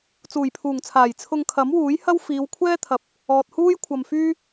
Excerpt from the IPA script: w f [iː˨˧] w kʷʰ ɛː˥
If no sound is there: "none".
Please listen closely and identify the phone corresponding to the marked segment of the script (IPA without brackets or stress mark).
iː˨˧